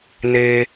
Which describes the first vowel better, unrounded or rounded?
unrounded